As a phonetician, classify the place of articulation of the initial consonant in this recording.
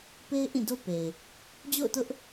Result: labial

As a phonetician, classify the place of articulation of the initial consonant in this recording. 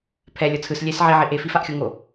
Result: labial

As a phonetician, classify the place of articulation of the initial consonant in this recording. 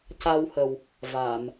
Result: palatal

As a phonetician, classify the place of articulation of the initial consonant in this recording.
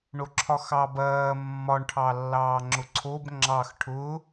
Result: retroflex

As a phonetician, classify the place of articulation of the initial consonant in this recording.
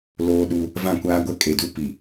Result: alveolar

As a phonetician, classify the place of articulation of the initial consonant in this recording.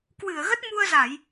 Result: velar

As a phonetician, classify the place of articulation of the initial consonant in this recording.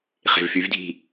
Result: uvular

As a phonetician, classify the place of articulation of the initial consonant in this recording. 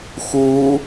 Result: velar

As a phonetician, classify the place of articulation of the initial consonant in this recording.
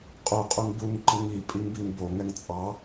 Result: uvular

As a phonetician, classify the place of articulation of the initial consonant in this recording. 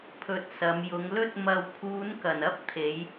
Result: labial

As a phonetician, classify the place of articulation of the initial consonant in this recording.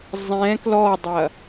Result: alveolar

